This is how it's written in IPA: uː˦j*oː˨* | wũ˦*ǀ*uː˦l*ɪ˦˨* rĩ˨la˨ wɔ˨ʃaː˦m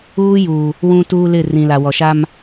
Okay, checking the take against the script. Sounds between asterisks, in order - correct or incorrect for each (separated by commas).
incorrect, incorrect, correct